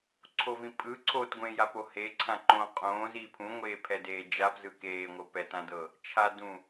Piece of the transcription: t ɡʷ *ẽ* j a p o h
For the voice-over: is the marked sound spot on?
yes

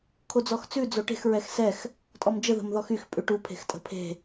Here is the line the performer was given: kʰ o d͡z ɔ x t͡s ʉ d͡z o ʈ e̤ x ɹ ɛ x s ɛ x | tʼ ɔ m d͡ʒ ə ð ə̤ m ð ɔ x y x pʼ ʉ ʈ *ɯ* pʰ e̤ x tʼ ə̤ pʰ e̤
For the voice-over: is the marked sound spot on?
no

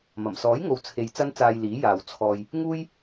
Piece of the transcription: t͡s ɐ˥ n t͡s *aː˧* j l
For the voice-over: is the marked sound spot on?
yes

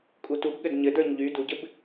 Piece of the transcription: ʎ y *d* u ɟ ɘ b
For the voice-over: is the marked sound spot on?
yes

